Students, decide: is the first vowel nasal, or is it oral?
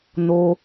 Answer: oral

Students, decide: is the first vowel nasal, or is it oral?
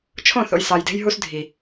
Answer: nasal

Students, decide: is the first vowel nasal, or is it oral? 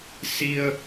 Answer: oral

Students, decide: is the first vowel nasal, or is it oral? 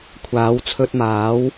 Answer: oral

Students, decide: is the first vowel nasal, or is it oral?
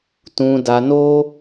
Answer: nasal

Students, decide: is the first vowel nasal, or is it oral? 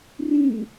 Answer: nasal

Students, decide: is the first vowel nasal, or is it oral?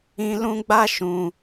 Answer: nasal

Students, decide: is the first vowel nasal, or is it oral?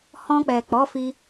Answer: nasal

